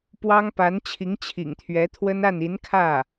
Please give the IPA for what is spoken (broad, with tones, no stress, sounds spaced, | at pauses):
p w ɑ˥ ŋ p a˧˥ n t͡ɕʰ i˧˥ ŋ t͡ɕʰ ḭ˨˩ ŋ t̪ʰ ɥ ɛ˧˥ t̪ʰ w ə˥ n a˥˩ n i˧˥ n kʰ ä˥˩